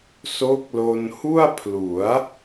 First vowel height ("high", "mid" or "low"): mid